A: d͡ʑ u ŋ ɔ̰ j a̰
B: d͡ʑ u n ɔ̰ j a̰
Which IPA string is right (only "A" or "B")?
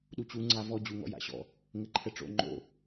A